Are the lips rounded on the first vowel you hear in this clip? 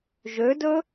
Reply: yes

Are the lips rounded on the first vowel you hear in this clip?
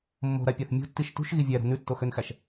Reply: yes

